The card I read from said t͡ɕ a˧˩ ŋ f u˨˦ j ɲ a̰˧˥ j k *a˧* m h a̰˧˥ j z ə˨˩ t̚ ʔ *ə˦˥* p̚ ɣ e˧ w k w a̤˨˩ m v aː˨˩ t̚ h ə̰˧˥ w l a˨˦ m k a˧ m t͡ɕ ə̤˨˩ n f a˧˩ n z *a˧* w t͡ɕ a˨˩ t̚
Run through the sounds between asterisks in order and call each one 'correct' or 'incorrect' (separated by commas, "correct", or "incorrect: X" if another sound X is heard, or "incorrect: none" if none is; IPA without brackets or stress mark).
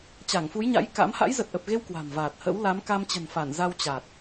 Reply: incorrect: a̰˧˥, incorrect: ə˨˩, correct